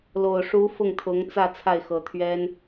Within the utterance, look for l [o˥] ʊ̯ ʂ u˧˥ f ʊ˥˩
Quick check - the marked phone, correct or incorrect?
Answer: incorrect: o˨˩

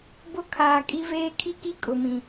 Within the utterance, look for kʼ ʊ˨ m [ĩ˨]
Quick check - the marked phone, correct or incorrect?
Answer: correct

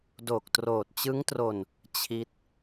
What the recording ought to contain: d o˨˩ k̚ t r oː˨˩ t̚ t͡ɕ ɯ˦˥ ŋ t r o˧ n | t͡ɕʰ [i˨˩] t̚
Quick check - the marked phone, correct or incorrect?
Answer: incorrect: i˦˥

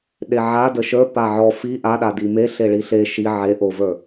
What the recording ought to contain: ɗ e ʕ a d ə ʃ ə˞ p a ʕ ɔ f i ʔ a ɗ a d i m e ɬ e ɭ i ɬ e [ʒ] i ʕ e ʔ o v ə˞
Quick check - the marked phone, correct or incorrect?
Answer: incorrect: ʃ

